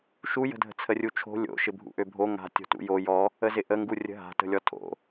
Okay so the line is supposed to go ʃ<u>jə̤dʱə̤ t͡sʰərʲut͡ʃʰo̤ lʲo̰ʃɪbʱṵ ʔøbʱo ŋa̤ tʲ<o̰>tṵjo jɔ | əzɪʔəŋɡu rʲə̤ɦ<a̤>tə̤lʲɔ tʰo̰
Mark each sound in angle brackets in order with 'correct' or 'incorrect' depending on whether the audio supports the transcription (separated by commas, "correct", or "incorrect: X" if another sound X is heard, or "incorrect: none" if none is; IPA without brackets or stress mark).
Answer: correct, incorrect: o̤, correct